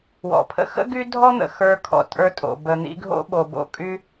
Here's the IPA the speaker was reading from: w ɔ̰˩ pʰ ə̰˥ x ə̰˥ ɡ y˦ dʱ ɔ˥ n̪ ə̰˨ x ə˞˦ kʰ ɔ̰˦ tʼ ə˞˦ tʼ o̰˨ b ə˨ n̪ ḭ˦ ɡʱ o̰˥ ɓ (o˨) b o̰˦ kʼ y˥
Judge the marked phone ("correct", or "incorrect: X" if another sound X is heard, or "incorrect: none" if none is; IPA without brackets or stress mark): correct